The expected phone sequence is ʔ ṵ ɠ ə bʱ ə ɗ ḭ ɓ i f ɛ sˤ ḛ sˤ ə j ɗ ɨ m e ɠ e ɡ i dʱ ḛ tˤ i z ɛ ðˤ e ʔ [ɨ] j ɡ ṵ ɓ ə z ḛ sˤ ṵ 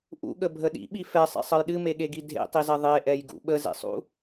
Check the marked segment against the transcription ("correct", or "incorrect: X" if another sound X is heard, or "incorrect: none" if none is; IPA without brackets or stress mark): incorrect: ɛ